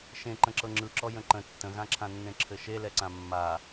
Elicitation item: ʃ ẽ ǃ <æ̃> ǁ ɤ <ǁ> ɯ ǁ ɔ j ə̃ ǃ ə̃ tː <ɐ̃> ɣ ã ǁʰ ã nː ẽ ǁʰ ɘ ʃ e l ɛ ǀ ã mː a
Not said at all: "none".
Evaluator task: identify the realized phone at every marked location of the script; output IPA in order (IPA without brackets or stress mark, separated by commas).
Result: ə̃, ŋ͡ǁ, ə̃